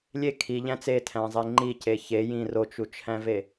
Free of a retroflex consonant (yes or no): yes